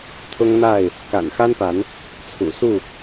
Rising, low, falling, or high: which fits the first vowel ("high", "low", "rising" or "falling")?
high